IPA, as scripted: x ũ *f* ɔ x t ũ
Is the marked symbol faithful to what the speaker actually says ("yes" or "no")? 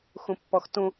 no